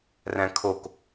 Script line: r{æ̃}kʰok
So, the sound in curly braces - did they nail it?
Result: yes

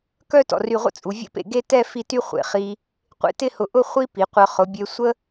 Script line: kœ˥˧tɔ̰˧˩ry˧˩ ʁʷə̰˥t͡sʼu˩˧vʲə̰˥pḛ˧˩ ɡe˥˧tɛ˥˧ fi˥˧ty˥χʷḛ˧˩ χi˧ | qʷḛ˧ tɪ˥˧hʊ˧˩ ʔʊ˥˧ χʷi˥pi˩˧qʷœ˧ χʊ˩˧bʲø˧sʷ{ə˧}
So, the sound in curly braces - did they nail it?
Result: no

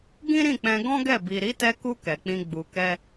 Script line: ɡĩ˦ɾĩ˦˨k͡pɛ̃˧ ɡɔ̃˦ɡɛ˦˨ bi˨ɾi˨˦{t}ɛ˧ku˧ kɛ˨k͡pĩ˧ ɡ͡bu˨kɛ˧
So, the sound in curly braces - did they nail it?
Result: yes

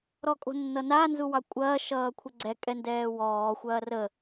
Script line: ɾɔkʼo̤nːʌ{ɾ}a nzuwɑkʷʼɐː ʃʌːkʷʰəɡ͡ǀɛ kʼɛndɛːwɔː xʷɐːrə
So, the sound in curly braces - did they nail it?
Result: no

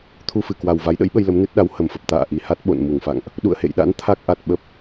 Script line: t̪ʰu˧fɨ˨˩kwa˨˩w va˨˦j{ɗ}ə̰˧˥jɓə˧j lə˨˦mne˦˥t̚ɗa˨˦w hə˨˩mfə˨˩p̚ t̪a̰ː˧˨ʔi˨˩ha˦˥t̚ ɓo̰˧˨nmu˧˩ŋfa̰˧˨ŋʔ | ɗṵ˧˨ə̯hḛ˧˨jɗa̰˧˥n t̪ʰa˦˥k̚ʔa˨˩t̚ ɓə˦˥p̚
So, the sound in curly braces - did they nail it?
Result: yes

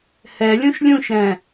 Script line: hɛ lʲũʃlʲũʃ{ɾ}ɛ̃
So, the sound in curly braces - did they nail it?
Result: yes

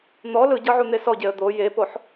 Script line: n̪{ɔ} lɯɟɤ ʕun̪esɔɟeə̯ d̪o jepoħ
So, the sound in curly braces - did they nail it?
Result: yes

